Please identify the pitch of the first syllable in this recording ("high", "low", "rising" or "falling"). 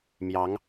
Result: rising